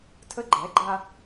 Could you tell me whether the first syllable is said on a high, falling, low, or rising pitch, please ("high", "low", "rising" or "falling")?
high